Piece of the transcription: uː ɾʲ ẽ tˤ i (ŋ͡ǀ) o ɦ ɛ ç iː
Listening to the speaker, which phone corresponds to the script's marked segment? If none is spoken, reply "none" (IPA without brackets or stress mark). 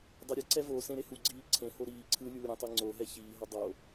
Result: ŋ͡ǀ